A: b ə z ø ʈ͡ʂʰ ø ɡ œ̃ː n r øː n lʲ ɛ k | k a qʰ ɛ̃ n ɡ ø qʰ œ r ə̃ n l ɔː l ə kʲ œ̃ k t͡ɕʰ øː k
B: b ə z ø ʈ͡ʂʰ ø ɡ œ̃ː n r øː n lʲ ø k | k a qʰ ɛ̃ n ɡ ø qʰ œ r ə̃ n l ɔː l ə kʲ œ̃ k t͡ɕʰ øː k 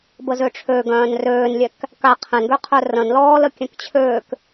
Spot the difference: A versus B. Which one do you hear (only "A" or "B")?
A